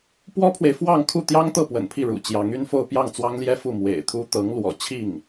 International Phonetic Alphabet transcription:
p w ɔ˥ pʰ w e˨ ɪ̯ f w ɑ˥˧ ŋ kʰ u˥˩ t̪ j ɑ˥ ŋ t̪ ɤ˥˩ p w ə̰˨˩ n pʰ i˥˩ ɻ ṵ˨˩ t͡ɕ j ɑ˧˥ ŋ y˥˧ n f o˥˧ ʊ̯ p j ɑ˥˩ ŋ t͡s w ɑ˥ ŋ l j ɛ˥ f u˥˩ m w ḛ˨˩ ɪ̯ t̪ʰ u˥ t̪ ɤ˧˥ ŋ l w ɔ̰˨˩ t͡ɕʰ i˥˩ ŋ

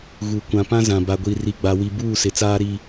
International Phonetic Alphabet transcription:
ɣ u˨ kʷ ã˨ p ã˦ z ã˨ b a˨ ɡʷ i˨ r i˨ ɡ͡b a˨ w i˨ b uː˦˨ s ɪ˨˦ t͡s aː˦ ɾ i˦

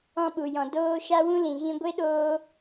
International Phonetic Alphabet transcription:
ɔ̃˦ ɓ u˨ j ɔ̃˨ d oː˦ ʃ a˦ w ũ˦ l ĩ˨ ɣ ĩ˧ ɡʷ e˦ ɗ oː˧

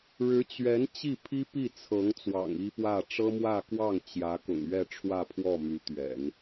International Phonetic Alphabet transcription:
ɻ ɻ̩˧˥ t͡ɕ ɥ ɛ˧˥ n t͡ɕ i˥˩ pʰ i˥ p i˥˩ t͡sʰ ɤ˧˥ ŋ t͡s w ɑ̰˨˩ ŋ i˥ p w ä˥˩ ʈ͡ʂ ɤ˥ m w ä˥˧ k w ɑ˥˩ ŋ t͡ɕ j ä˧˥ k ʊ̰˨˩ ŋ ɥ ɛ˥˧ ʈ͡ʂʰ w ä˥˧ pʰ w ɔ˥˩ m y˧˥ t̪ ɥ ɛ̰˨˩˦ n

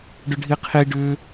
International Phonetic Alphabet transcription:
ɖ ʏ ɖʱ i qʰ i ɖ ʏ

